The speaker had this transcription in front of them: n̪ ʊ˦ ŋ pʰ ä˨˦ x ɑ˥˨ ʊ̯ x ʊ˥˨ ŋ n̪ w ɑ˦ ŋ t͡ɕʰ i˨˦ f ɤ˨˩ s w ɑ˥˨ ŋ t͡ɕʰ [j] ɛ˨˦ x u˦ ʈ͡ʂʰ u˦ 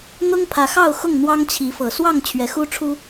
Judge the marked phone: incorrect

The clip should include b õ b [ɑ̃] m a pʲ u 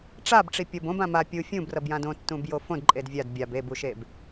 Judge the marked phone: incorrect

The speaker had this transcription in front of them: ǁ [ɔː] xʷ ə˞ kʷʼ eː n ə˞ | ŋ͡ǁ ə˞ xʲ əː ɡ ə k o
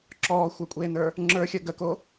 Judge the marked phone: correct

